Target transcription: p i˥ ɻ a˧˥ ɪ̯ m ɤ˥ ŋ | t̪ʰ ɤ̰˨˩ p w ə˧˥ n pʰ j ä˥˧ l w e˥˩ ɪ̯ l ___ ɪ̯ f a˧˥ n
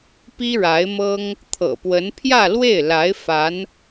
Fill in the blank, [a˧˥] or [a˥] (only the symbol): a˧˥